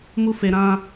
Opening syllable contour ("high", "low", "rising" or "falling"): high